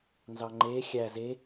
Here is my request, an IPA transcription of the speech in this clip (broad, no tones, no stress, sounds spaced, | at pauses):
n z ɑ ŋ͡ǃ eː xʲ æ z e